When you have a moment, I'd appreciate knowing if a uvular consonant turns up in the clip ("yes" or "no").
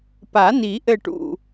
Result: no